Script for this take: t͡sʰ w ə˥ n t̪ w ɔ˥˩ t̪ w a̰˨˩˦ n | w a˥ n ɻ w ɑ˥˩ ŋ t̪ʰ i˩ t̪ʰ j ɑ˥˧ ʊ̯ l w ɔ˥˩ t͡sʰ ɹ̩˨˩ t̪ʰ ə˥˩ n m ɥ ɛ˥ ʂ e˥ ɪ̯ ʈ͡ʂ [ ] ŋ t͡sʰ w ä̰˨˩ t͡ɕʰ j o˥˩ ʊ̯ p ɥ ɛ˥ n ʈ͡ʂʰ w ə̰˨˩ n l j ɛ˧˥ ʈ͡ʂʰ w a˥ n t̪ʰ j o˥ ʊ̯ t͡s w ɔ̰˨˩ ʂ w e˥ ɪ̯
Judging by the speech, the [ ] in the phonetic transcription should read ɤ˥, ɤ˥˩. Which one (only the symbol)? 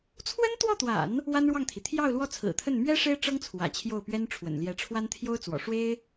ɤ˥